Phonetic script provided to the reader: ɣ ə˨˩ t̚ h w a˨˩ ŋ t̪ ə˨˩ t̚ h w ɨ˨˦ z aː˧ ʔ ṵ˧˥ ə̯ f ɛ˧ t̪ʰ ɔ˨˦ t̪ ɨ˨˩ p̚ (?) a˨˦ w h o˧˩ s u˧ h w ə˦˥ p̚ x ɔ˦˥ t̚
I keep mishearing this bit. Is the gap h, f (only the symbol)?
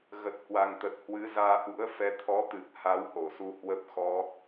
h